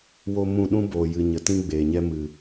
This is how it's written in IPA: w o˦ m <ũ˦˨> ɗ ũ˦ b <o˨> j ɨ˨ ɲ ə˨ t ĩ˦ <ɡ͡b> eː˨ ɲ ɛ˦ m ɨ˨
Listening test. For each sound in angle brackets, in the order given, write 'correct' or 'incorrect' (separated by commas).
correct, incorrect, correct